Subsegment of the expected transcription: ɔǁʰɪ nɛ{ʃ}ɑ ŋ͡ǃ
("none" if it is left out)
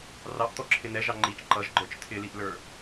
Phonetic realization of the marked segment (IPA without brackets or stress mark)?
ʒ